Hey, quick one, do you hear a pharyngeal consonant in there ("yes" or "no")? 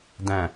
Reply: no